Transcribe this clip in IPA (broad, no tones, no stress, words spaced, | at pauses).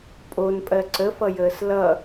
pʼonpʼɜ ǀəfʌjəːs lʌ